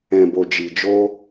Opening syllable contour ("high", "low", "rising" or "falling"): low